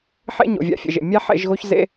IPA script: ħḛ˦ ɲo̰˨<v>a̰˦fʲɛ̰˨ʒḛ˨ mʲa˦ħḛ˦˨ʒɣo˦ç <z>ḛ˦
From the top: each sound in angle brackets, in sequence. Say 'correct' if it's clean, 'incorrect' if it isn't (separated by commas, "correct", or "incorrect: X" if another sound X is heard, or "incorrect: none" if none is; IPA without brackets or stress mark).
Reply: incorrect: vʲ, correct